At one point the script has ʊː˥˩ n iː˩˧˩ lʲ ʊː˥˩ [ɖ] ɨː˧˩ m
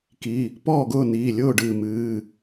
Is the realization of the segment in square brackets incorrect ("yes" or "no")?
no